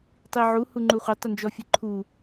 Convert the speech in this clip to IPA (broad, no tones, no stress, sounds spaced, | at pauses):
tˤ i ʕ u h u ŋ͡ǃ u χʷ ɐ tˤ ə n d͡ʒ ɔ fʲ ə ǃʰ u